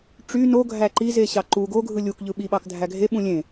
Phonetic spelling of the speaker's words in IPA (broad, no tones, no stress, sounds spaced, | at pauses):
ʈ͡ʂ y n o ɡʱ æ ǃ i z e ɕ ɑ ǃ u ɡ o ɡʱ ɯ lʲ u k ʎ ɯ ɓ i ɓ ɑ k dʱ æ ɡʱ e ɓ ũ lʲ ẽ